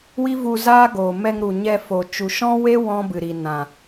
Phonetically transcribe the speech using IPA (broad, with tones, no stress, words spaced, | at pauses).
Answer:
wi˦vu˧zaː˦ ɡoː˨ mɛ˧ŋɾu˨ɲɛ˧fo˨ t͡ʃu˨ʃɔ̃˦we˦ wɔ̃˦bɨ˨ɾi˨ nã˨